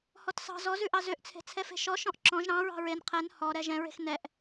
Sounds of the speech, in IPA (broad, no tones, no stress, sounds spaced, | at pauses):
h ɔ t s ɑ̤ z ɔ z ʉ ʔ ɑ z ø ʔ t͡sʰ e̤ t͡sʰ ɛ f e̤ ʃ ɔ ʃ ɔ̃ ʔ ǁ ɔ̃ ʒ ɾ ɑ̃ ɹ ɑ̤ ɹ e n qʰ ɛ n h ɔ ɾ ɛ ʒ ɛ̃ ɹ e̤ x n ɛ ʔ